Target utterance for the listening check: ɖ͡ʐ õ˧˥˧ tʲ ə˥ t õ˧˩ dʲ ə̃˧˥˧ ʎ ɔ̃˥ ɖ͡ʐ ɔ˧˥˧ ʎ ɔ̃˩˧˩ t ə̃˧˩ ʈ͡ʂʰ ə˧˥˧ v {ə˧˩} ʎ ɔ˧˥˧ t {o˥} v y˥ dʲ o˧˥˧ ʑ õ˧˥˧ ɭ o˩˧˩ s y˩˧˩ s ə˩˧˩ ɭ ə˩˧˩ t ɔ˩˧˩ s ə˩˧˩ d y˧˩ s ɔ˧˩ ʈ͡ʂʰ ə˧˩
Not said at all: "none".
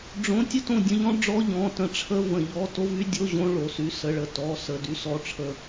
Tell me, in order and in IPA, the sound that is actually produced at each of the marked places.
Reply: ə̃˧˩, o˥

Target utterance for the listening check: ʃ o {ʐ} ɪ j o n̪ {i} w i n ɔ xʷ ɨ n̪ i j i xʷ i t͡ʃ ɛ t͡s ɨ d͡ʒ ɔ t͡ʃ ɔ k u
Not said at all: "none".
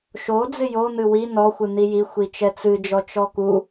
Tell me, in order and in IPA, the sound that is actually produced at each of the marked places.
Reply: d͡z, ɨ

